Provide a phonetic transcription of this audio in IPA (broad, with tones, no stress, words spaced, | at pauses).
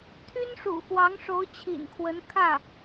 t̪ʰy˥nʂṵ˨˩ xwɑ˧˥ŋʂo˧˥ʊ̯t͡ɕʰḭ˨˩nkʰwə˧˥n kʰä˥˩